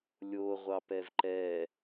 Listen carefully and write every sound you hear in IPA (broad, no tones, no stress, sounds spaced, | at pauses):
lʲ o ʁʷ ɑ p ɛ v ǃ ɛ